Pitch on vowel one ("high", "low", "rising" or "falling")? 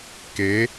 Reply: rising